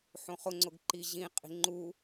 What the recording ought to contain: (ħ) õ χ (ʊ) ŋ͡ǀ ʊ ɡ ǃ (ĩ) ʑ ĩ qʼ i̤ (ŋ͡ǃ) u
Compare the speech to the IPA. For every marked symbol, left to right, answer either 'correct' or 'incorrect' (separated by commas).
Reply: correct, correct, incorrect, correct